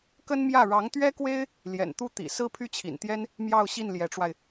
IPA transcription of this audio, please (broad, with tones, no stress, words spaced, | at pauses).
kə˥nmjä˥˩ ɻɑ˧˥ŋt̪ɥɛ˥kwe˥ɪ̯ | ljɛ̰˨˩nt̪u˥˩ t̪ḭ˨˩ sɹ̩˥pʰy˥˩t͡ɕʰḭ˨˩nt̪jɛ˥n | mjɑ˥˧ʊ̯ɕi˥˩n ljɛ˧˥ʈ͡ʂwa˧ɪ̯